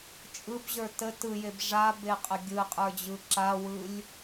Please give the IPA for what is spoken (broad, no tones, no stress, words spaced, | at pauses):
t͡ʃʼɯbʑə˞ tə tɯjeb ʐabeqʼə ɡʲɯqʼə˞d͡ʑɯ ǁawɯlʲ